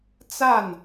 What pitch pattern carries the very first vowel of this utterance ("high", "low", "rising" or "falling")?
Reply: falling